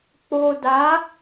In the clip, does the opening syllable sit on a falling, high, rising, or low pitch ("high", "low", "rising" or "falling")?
low